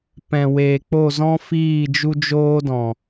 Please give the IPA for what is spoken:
p ɛ̃˨ w eː˨ k͡p o˦˨ z ɔ̃˦ f iː˦˨ d͡ʒ u˦ d͡ʒ oː˦ d ɔ̃˨

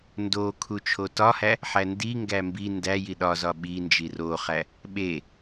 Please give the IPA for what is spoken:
n d o kʰ u t͡ʃʰ o t ɒ h æ | ħ æ n d i ŋ ɡ æ m b i n d æ j i ɗ ɒ z ɒ ɓ i n d͡ʒ i r o χ æ | ɓ e

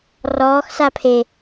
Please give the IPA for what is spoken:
r ɔː x s a pʰ e

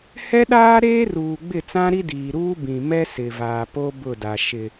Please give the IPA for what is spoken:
h ɛ˦ ɗ aː˦ ɾ eː˦ r uː˨ ɡ͡b ɪ˦˨ t͡s ã˦ ɾ i˦ d iː˨ ɾ uː˦ b ĩ˨ m ɛ˦ s ɪ˨ v aː˨ p o˦ b ʊ˦˨ d a˨ ʃ ɪ˨

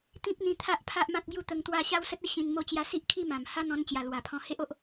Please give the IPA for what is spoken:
t̪ ĩ˦ p̚ n̪ ĩ˧ t̪ʰ a˦ ʔ pʰ a˦ ʔ m ã˦ t̚ ɡ j u˥˧ t̪ ə˧ ŋ t̪ w a˥˧ ɕ a˦ w s ə˦ t̚ ə˥˧ ɕ ĩ˧ n m o˥˧ t͡ɕ j a˦ s i˦ ʔ kʰ i˥˧ m ã˨˩ m h a˦ n̪ ɔ̃˧ n t͡ɕ j a˨˩ l w a˨˩ pʰ ɔ̃˧ h e˦ ʔ o˦ ʔ

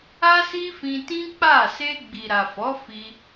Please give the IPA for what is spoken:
a˦ s i˦ f ĩ˧ t ĩ˦ k͡p a˦˨ s e˧ ɡ͡b i˨ ɾ a˨ f ɔ˨˦ f i˧

